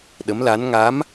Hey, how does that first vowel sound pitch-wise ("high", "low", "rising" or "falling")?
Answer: rising